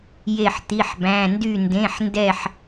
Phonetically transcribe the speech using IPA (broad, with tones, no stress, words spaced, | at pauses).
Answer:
je˥˧ħt̪i˧˥˧ħbæ̃˧˥˧ ndy˥˧ndẽ˧˥˧ħndɛ˥˧ħ